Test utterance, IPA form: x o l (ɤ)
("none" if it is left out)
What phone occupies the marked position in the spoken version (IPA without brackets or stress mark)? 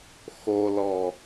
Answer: ɔ